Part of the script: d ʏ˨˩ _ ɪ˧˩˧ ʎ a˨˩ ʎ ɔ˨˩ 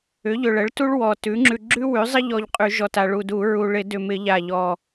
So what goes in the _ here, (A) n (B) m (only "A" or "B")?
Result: B